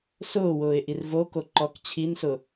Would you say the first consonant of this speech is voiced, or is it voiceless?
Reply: voiceless